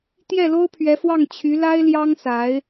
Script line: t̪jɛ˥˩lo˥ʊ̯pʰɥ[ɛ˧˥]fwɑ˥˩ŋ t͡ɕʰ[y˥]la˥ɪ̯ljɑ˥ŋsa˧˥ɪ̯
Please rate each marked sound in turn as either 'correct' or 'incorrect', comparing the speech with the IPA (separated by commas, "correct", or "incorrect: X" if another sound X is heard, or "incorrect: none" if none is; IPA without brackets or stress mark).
correct, incorrect: y˧˥